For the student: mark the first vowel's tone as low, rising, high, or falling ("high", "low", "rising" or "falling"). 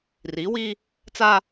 rising